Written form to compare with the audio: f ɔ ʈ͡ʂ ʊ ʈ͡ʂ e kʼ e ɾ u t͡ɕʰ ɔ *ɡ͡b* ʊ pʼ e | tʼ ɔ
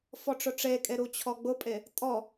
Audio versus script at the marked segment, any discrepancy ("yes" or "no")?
no